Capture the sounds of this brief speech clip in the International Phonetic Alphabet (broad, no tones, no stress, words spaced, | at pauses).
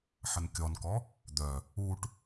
ħənkʲɔnkɔ | d̪œ | uʈ